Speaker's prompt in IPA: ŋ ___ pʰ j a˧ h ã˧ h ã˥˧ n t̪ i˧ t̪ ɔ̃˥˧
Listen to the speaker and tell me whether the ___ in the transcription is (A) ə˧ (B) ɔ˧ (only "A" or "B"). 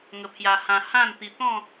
A